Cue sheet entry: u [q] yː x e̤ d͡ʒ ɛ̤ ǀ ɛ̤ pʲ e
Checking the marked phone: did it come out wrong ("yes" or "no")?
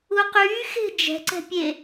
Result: no